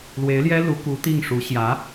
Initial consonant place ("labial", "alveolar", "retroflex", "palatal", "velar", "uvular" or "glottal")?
alveolar